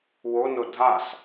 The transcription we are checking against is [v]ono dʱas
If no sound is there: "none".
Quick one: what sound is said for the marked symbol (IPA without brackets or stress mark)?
w